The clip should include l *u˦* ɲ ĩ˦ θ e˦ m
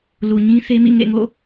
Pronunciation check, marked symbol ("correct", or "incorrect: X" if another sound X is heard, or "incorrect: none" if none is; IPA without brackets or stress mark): incorrect: u˨